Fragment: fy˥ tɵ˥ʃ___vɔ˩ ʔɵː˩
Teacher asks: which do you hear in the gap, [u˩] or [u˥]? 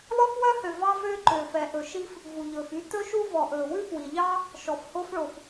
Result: u˥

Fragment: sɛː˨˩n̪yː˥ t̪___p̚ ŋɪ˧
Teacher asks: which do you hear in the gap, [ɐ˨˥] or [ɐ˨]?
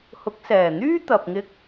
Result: ɐ˨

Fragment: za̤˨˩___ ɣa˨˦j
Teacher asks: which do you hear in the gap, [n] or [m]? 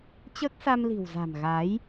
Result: m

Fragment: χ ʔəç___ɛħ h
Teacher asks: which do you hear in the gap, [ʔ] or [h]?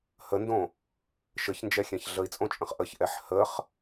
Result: ʔ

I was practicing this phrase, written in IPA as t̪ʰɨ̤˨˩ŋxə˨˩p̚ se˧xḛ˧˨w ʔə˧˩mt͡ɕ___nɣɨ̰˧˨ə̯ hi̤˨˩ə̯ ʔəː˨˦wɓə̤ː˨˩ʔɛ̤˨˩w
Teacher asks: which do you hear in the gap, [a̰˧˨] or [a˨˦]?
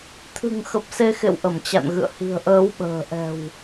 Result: a̰˧˨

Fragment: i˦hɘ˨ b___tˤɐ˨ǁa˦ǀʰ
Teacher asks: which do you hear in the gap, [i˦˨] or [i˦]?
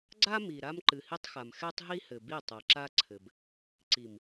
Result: i˦˨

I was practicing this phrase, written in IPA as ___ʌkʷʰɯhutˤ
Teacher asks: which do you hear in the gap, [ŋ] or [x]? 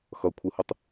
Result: x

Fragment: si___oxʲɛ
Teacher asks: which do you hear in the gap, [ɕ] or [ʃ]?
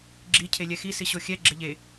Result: ɕ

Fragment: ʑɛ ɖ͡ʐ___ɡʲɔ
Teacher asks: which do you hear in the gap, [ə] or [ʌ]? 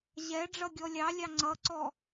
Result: ʌ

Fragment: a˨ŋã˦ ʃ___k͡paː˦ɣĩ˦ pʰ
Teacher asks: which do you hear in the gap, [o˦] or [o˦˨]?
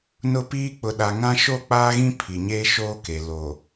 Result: o˦˨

